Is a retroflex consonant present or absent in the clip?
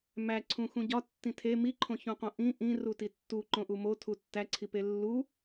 absent